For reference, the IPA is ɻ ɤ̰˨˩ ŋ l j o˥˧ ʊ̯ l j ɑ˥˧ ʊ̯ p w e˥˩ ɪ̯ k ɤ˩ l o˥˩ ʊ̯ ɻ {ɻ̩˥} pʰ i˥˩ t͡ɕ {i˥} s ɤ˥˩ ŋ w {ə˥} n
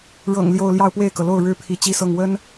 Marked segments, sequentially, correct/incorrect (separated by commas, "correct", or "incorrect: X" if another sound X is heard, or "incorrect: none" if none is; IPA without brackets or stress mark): correct, correct, correct